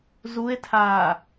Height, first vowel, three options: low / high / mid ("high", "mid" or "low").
high